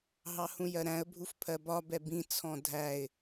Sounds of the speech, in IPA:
ɦɑhũjɜɾæ̃ə̯ bʱufpʰɜbɒ bɛbĩ t͡sʰɔ̃dʱæɪ̯

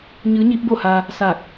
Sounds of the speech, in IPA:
ɲɯː˧˥ɲiː˧˥p̚bo˥˨ha˧ | sa˧˩k̚

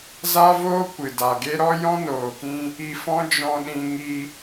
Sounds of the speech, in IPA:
za˦voː˦ kʷɨ˨da˨ɡe˦ ɾɔ˦jɔ̃˦noː˨kĩ˧ | i˧fɔ̃˦d͡ʒɔ̃˧ɗĩ˧ ŋi˧

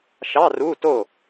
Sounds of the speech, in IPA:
ʃɑ˧˥˧ ru˧˥˧ to˥˩

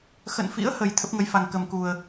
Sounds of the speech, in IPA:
xə̰˧˨nfḭ˧˥ə̯hə˨˩j t̪ʰə˦˥p̚ŋə˨˦jfa˨˩ŋ kə˨˩mku˨˩ə̯

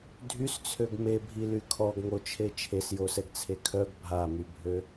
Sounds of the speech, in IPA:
dʱyst͡sʰøɡ mebʱily kʰɔɡŋot͡ʃʰe t͡ʃʰesjosɛɡt͡sʰe kʰœɡ bʱamybʱø

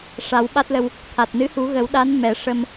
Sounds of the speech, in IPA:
ʂa˨˩˦wɓa˦˥t̚lə˧w | t̪ʰa˨˩t̚ nɨ˧˥hu˨˩˦ɣə˨˩˦w ɗa˧˥nmɛ˨˩˦ ʂə˧m

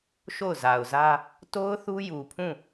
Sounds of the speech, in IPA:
ʃo˦˨ʊ̯za˨ʊ̯zä˦ | to˦ʊ̯ θu˦ju˨pʰũ˦˨

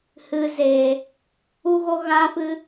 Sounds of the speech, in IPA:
hɨ˨ zeː˨ | u˧ɣo˧ ɣã˦fɨ˦

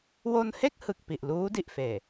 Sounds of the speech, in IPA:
wo˧nhe˥˩k̚ hɯ˨˩k̚ pi˨˩ʔluː˦˥di˨˩ʔfeː˨˩

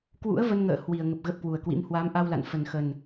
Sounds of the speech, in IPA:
kwṵ˧˥ə̯və˧nŋə̰ː˧˨ hwi˨˩ə̯ŋə˨˩p̚ ɣə˦˥p̚kwu˨˩ə̯kwḭ˧˥m hwa˨˦mʔa˧wla̰˧˨n fə˨˩nxə˨˩n

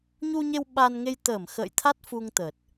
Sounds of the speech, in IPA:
ɲu˧ɲe˧w ɓa˧nŋe˧jt̪əː˧˩m xə̰ː˧˨jt̪ʰa˦˥t̚ fu˧ŋt̪ə˨˩t̚

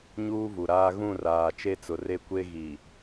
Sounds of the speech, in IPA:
ɲuː˦vu˨ɾaː˦ ɣũ˦˨raː˨ t͡ʃe˦t͡sʊ˨re˦kʷe˦ ɣi˨

